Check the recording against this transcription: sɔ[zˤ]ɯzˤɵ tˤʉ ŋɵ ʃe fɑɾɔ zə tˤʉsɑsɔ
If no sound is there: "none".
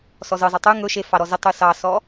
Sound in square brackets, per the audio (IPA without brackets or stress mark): z